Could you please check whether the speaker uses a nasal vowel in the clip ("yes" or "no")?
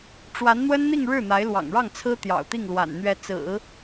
no